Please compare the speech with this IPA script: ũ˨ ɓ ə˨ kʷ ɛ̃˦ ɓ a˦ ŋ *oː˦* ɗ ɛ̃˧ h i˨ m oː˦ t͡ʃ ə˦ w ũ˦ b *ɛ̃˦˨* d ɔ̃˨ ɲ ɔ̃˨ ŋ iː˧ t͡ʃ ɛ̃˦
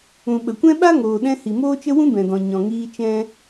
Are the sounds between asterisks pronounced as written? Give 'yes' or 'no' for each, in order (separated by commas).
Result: no, no